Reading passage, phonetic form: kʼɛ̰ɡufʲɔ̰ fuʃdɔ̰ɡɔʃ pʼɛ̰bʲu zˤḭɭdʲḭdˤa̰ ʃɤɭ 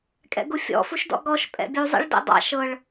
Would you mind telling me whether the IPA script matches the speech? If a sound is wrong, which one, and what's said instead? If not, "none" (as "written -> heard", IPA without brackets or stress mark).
dʲ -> d